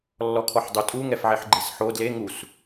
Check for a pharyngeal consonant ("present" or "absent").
present